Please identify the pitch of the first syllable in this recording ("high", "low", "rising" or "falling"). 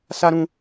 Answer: high